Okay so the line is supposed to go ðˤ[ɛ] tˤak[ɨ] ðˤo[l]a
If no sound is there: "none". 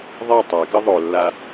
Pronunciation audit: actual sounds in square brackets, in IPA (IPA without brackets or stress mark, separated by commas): ɛ, ɨ, lː